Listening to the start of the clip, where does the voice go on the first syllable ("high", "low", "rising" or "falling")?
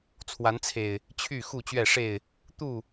rising